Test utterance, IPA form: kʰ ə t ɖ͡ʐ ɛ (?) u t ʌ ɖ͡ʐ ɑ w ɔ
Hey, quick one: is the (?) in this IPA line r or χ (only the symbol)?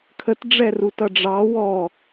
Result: r